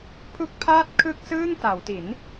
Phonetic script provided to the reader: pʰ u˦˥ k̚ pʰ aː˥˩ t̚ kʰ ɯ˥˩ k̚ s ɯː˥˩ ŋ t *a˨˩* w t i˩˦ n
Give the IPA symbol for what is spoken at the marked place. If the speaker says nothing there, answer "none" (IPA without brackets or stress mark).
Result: a˩˦